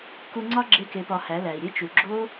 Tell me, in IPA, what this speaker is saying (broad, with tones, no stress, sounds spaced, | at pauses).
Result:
k u˧ ŋ͡ǀ ɒ˦ ɡ͡ǁ e˦ k e˧ p ɒ˧ h æ˨˦ l æ˨ i̯ ɾʲ e˧ t͡ʃ u˨ ɡ͡ǁ o˦